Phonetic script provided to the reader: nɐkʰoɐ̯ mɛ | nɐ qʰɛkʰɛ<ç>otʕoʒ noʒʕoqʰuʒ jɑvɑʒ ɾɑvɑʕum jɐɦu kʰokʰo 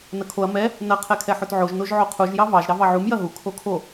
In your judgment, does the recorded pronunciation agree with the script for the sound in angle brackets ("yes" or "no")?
no